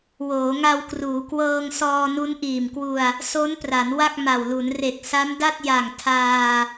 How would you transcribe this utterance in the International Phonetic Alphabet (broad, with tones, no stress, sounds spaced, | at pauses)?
w oː˩˦ ŋ a˧ w k r uː˩˦ k w ɤː˧ ŋ s ɔː˧ n u˦˥ n ʔ iː˨˩ m k w u˧ a̯ | s o˦˥ n p r a˩˦ n w a˥˩ k̚ m a˨˩ w l u˩˦ n r e˨˩ k̚ s a˦˥ m d a˥˩ t̚ j a˨˩ ŋ tʰ aː˧